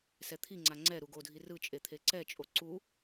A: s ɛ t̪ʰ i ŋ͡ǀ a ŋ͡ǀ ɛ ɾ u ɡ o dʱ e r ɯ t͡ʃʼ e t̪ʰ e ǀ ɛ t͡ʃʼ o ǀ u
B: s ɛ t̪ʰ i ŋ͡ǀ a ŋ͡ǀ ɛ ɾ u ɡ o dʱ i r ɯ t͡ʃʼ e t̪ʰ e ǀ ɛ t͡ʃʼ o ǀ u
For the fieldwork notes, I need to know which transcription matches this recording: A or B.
B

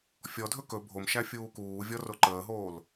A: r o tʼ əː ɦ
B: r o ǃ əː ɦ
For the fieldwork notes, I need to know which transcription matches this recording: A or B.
B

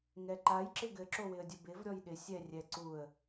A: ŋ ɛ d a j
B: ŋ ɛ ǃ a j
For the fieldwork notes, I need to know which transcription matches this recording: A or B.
B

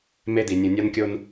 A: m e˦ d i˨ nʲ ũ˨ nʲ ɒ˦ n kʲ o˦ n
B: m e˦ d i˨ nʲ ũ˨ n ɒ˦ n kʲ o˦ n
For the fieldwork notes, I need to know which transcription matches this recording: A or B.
A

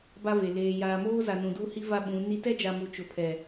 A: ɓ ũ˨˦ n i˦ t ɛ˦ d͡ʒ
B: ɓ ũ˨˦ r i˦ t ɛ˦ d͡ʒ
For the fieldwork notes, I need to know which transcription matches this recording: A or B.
A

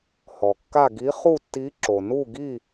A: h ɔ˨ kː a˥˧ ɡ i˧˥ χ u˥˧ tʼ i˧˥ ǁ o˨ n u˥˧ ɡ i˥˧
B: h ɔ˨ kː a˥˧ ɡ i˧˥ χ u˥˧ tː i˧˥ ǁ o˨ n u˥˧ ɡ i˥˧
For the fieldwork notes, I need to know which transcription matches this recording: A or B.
B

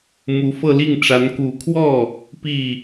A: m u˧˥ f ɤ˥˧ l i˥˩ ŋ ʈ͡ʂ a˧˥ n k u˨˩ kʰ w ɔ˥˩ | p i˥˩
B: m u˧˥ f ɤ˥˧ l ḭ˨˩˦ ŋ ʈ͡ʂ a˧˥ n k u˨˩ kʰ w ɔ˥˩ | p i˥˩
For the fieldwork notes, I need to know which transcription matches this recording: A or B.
A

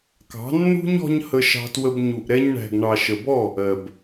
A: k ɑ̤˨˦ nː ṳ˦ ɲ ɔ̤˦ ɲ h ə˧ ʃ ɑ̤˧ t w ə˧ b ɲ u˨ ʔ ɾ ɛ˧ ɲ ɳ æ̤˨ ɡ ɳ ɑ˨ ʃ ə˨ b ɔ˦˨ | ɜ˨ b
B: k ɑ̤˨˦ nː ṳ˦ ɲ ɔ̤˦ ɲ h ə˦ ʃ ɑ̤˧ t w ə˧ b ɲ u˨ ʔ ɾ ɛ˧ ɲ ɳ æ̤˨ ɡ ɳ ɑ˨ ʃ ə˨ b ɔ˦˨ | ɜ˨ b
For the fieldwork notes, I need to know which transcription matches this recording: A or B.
A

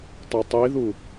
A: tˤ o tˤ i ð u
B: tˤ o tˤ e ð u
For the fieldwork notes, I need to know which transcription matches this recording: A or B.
A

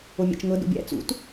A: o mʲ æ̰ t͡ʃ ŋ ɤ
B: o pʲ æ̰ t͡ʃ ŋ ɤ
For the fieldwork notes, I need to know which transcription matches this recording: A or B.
A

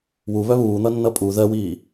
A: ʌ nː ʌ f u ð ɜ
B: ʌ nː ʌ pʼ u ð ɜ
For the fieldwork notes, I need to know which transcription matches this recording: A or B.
B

